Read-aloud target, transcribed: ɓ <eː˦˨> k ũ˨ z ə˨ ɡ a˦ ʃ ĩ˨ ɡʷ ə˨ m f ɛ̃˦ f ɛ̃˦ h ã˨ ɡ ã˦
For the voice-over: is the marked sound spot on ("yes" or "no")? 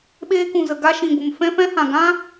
no